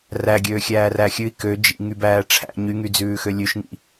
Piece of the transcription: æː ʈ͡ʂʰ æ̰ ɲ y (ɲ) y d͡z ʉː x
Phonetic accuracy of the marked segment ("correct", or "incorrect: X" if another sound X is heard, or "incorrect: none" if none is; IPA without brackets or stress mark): incorrect: ŋ